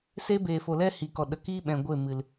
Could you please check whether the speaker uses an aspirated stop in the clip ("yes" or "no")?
no